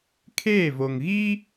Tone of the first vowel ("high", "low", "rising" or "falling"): falling